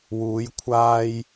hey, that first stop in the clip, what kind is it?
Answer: aspirated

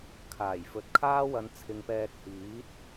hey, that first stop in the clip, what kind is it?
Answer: aspirated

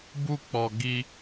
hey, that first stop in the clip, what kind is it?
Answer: plain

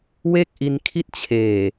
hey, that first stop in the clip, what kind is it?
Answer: plain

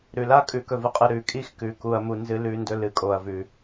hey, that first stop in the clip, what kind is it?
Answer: ejective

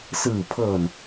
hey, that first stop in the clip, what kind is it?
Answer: aspirated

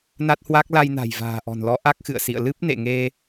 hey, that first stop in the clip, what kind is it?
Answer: plain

